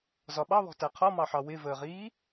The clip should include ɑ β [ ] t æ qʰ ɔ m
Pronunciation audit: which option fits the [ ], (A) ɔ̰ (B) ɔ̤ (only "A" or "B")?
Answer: B